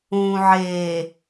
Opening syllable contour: low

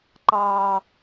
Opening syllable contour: low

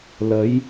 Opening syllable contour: rising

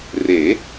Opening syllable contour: rising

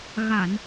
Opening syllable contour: low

